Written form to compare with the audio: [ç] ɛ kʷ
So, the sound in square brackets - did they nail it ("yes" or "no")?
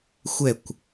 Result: no